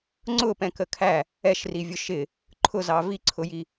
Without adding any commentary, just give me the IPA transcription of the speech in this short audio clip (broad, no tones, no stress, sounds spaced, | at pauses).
ŋ͡ǀ ʊ p ɛ̃ k ə kʰ æ | ɛ ʃ r i vʲ ʊ ʃ ɪ | ǃʰ ʊ z ɑ v i ǀʰ ʊ j i